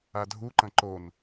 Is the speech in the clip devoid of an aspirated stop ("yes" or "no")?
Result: yes